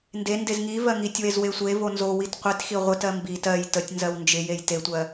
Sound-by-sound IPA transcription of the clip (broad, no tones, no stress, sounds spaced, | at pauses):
n d e n d e z ŋ i v ɜ ŋ i tʲ w e z w e sʷ e v o n z o w i t qʷ i t x i ʁʷ ɪ t ɜ m b i t ɜ j t ə tʲ n z ɜ w n d͡ʒ ɪ j e j t e tʷ ɜ